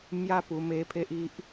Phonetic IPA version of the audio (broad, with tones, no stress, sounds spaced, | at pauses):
m j a˦ p u˧ m e˦ pʰ e˦ ʔ i˦ ʔ